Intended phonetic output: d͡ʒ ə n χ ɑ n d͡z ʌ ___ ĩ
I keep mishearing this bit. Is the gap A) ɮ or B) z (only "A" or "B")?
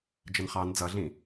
A